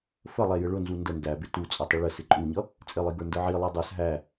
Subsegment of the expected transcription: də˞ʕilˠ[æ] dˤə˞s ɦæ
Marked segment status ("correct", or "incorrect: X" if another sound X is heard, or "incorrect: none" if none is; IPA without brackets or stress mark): correct